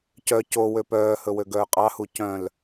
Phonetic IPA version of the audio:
c œ c o w ø p œː h ɵ w ø ɡ œː qʼ ɑ h u c œ̃ l

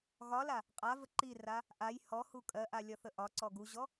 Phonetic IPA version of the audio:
ɣ ɒ l a | qʼ a v ə ǃ i r a | ʔ a j h ɔ h u kʼ ɜ ʔ a lʲ ɒ θ ə ʔ ɒ ǀ ɔ ɡ u ʑ ɔ

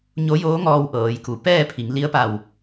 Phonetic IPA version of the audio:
ɲ o˧˥ j oː˧˥ ŋ ɔː˧ w ʔ ɤː˩˧ j k u˩˧ p ɛː˥˨ pʰ i˩˧ ŋ l i˧˥ ə̯ p a˧˩ w

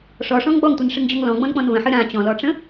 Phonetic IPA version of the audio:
ʂ ɔ ʂ ɔ̃ ŋ ɡ͡b ɔ ŋ tʷ ɨ n ʂ ɨ ŋ d͡ʑ ɔ ŋ l ɔ̃ ɡ͡b ɔ̃ n k͡p ɔ̃ n v ə̃ ħ ɨ ɾ ã t͡ɕ ɔ̃ l ɔ ʈ͡ʂ ə̃

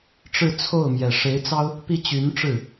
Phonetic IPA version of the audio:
ʈ͡ʂ ɻ̩˥˧ t͡sʰ o˥˩ ʊ̯ m j ɛ˨˩ ʂ e˧˥ ɪ̯ t͡s ɑ˥ ʊ̯ | p i˥˩ t͡ɕ y˧˥ n ʈ͡ʂ ɻ̩˥˩

